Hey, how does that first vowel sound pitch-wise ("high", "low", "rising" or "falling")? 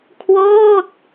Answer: falling